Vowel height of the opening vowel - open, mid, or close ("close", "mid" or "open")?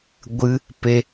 close